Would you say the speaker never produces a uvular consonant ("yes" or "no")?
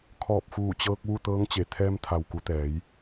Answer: yes